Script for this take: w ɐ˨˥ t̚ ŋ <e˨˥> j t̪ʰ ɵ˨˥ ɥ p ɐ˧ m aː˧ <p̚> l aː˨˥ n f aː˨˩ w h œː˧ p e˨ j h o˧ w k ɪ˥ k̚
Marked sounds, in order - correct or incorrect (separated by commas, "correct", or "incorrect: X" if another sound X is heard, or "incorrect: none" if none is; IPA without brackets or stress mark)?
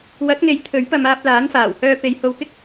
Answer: correct, correct